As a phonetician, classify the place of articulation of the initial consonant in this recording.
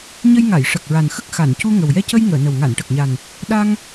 palatal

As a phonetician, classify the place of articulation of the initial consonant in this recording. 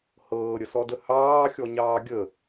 glottal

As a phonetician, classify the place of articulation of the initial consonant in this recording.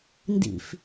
alveolar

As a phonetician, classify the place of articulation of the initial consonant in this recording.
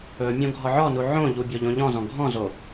labial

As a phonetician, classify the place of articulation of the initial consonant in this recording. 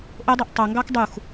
glottal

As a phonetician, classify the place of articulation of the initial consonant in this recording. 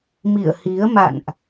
labial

